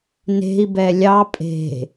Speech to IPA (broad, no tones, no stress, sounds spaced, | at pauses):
n e̤ i̯ b ɛ lʲ ɑ pʼ e̤